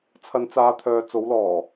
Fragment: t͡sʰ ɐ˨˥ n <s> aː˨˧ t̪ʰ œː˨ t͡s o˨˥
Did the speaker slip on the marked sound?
yes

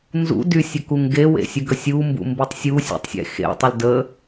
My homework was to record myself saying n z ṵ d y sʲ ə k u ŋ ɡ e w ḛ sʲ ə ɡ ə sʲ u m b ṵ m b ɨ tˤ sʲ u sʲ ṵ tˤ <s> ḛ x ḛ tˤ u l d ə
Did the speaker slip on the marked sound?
yes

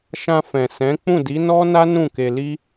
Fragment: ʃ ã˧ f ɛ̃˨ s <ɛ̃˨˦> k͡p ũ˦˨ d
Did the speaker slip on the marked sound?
no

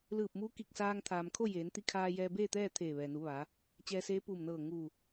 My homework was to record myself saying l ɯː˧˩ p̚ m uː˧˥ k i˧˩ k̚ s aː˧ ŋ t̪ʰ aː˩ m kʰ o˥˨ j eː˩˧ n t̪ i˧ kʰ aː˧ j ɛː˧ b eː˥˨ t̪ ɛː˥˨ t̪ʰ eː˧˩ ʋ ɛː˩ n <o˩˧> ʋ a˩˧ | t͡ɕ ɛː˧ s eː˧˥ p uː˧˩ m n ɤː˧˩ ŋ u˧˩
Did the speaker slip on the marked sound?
yes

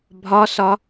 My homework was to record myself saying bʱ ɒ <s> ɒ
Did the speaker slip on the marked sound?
no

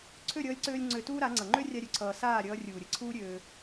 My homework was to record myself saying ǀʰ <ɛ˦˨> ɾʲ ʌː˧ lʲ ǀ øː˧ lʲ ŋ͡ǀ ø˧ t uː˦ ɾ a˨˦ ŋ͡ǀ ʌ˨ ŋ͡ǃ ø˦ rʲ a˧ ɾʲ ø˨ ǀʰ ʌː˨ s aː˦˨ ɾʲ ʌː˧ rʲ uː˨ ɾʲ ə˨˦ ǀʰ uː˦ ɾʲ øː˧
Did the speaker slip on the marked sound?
yes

